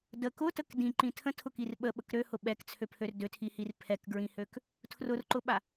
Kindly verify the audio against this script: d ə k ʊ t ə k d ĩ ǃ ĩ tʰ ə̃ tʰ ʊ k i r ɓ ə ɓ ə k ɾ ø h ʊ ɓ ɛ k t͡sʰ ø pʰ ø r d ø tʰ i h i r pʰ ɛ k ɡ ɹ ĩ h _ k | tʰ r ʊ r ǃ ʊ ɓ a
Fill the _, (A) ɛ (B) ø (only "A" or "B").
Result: B